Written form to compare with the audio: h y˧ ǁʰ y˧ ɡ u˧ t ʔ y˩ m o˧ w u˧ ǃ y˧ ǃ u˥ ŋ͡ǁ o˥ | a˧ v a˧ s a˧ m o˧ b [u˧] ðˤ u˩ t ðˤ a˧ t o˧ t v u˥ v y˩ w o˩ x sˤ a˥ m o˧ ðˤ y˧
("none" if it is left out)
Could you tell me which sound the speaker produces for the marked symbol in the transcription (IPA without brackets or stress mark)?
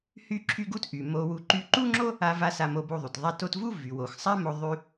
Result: u˧